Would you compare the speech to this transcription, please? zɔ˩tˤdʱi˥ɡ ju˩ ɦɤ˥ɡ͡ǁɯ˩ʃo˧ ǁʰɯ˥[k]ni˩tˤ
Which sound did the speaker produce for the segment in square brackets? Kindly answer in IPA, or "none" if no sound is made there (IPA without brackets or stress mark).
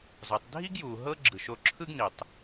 ɡ